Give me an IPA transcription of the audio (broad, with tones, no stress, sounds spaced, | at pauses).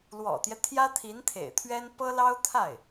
l w ɔ̰˨˩ t̪ j ɛ˦ t̪ʰ j ä˥ t̪ʰ i˧˥ n t̪ʰ ḛ˨˩ ɪ̯ t̪ʰ ɥ ɛ˥ n p ɤ˥ l ɑ˥ ʊ̯ t̪ʰ a˥˩ ɪ̯